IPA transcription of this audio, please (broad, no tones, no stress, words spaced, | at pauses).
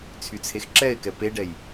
t͡sʰyt͡sʰexǁɛɪ̯kɛ peɖɛj